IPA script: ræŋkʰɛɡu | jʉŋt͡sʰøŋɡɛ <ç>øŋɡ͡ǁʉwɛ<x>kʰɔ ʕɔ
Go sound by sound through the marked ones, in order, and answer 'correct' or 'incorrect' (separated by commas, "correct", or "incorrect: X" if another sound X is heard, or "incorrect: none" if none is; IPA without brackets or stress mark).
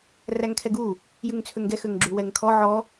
incorrect: x, incorrect: ŋ